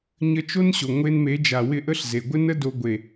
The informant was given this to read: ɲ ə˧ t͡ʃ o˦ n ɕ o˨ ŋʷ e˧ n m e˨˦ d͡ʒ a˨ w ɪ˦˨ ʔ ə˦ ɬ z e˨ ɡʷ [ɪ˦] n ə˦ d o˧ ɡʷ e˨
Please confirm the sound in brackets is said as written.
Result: yes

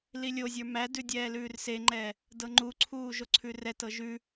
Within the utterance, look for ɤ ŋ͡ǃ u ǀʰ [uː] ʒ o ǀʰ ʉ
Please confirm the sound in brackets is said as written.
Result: yes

